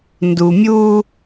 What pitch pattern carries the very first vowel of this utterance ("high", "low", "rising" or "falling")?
low